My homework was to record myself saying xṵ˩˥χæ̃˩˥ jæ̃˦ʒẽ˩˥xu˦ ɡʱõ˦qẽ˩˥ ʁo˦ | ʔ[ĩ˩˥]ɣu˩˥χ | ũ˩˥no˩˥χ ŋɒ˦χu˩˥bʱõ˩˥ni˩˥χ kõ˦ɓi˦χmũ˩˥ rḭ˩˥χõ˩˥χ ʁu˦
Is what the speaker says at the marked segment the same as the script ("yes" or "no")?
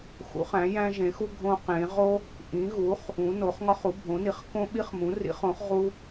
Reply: yes